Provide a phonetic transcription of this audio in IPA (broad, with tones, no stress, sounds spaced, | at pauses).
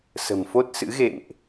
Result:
s ə̤˨˩ m f o˦˥ t̚ s ɨ̰˧˥ ɣ ḛ˧˨ m ʔ